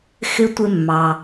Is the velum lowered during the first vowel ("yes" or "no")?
no